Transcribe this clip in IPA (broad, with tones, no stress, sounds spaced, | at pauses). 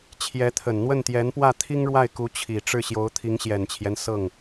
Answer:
t͡ɕʰ j ɛ˧˥ t̪ʰ ə˨˩ n n̪ w ə˥˩ n t̪ j ɛ˧˥ n p w ä˥˩ t̪ʰ i˥ ŋ ɻ w a˥˩ ɪ̯ k u˧˥ t͡ɕʰ i˨˩ ʈ͡ʂ ɻ̩˥˩ ɕ j o˧˥ ʊ̯ t̪ʰ i˧˥ ŋ ɕ j ɛ˨˩ n t͡ɕʰ j ɛ˦ n s ɤ˥˩ ŋ